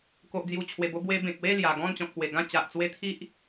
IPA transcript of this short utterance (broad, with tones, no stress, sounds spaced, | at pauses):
k o˨ ʔ d͡z j u˨˩ t͡ɕʰ w e˨˩ b o˧ b w e˧ b ẽ˨ k̚ w e˥˧ l j a˨˩ ɡ ɔ̃˥˧ n t͡ɕ ɔ̃˨ k̚ p w e˨˩ ɡ ã˥˧ t͡ɕ a˨ ʔ t͡s w e˦ t̪ʰ i˦ ʔ